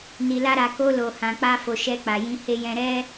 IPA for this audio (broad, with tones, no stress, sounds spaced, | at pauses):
n i˨ l a˧ ɾ a˨ k o˧ l o˨ h ã˨ k͡p a˧ f o˨ ʃ ɛ˧ k͡p a˨ j ĩ˧ h e˧ j ɛ̃˧ ɾ ɛ˦